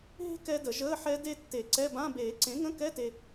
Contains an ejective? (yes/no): no